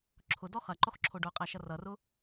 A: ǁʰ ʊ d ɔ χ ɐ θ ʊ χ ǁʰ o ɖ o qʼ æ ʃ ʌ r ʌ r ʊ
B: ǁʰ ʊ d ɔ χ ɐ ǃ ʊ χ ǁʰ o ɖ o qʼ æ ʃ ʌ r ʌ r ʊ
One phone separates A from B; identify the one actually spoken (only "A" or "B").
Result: B